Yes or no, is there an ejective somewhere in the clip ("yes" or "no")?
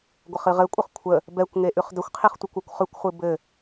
yes